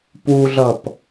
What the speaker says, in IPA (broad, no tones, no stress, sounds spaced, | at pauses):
p u ɮ ʌ p